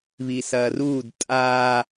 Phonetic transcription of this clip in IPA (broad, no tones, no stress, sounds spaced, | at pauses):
β i s ɐː r uː d tʼ aː